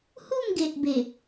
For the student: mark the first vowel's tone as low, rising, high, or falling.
falling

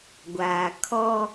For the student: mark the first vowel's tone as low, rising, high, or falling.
low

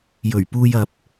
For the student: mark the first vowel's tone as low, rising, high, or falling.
low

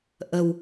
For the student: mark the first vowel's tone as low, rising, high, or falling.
low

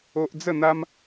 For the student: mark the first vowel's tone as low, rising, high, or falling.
high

